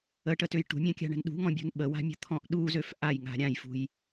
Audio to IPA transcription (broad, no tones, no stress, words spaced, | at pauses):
əʈətøj ʈṳmʲãkʲa̤ɳə̤n ɗṳŋɔ̃bʲṳn ɓəwa̤mʲə̤t̪ʰɔ̃ʔ ɗuzøf ʔajŋa̤ ɾʲãjfṳj